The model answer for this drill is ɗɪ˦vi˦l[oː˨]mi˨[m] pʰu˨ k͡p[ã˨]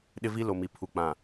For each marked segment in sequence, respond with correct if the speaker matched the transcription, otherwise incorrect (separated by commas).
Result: incorrect, incorrect, correct